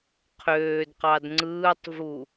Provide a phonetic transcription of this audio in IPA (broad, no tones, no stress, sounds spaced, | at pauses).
qʰ øː d q ɑ d ŋ͡ǀ ɯː tˤ v u